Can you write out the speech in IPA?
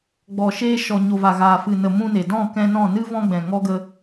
ɡ͡b ɔ˨ ʃ eː˧ ʃ ɔ˨ ɲ o˨ v a˨ ɣ aː˨ f ɨ˨ n ə˨ m ũ˧ n e˨ d ɔ̃˦˨ k ɛ̃˧ n ɔ̃˦˨ n ɨ˦ v ɔ̃˧ ɡ͡b ɛ̃˨ ŋ ɔ˦ ɡ ə˦

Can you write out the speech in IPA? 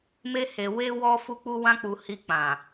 m e˧ h e˨ w e˧ w ɔ˦ f u˦ k͡p u˧ w ã˧ k͡p u˨ h i˧ k͡p ã˨

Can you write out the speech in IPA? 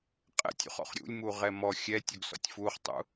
qʼ ɛ̰ tʲ ṵ χ ɔ̰ χ ɾʲ ṵ lʲ m u ʁ ɛ m ɔ xʲ ɛ tʲ u ɡ s ɔ̰ tʲ f u χ tˤ ṵ

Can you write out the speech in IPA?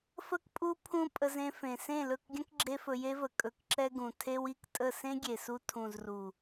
f ə˦ k pʼ u˦ pʰ ũ˦ pʼ ə˧ z ẽ˧ f ẽ˨ s ẽ˦˨ l ɵ˦˨ k ɡʲ ə̃˦ k ɡ͡ǁ e˦ f ɵ˧ j e˦ v ə˨ kʼ ɵ˧ k ǁ ɛ˦ ɡ ũ˨ tʰ e˦ w i˦ k tʼ ə˦˨ s ẽ˦ ɡʲ e˨ s u˧ tʰ ũ˨ z r u˨

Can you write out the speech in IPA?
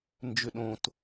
n d͡ʒ ʏ ɗ õ t

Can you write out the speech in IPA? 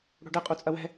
ɽ o̤ ɖ ɘ qʼ u t͡sʼ ɐ w ɛ̤

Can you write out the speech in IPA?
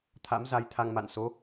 t̪ʰ a̰˧˥ m z a˧ j t̪ʰ a˧ ŋ m a̰˧˨ n s o˨˦

